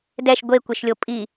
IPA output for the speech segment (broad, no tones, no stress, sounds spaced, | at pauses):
d ɛ ʃ ɡʷ e kʷ e ʃ lʲ o pʼ i